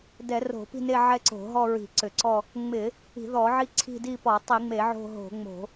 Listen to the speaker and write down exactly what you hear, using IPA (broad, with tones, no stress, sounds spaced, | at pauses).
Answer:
d ɛ˧˩˧ r o̤˧˩˧ p i̤˦˨ n e˦˨ ʕ ɛ˦˨ ǀ o̤˧˩˧ ɦ ɔ˦˨ ɹ i̤˧˩˧ ǀ ʏ˧˩˧ ǀ ɔ˦˨ | ŋ͡m ɪ˧˩˧ | i̤˧˩˧ ð ɔ˧˩˧ ʕ i˦˨ ǀʰ i̤˦˨ d i˦˨ p ɔ˧˩˧ tˤ i˧˩˧ ŋ͡m e˧˩˧ ʕ o̤˦˨ ɦ o̤˧˩˧ ŋ͡m o̤˧˩˧